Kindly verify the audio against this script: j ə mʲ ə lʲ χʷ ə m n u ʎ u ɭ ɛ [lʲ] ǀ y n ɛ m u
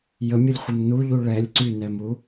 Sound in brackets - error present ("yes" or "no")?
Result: no